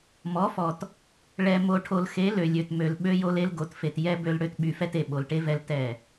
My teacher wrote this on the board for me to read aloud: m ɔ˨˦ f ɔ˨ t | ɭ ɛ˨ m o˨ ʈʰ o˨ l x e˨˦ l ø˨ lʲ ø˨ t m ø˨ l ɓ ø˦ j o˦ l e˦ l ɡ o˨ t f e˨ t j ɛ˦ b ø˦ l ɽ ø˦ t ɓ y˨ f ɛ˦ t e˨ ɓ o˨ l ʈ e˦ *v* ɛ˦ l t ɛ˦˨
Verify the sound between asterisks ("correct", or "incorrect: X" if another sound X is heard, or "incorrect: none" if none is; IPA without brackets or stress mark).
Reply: correct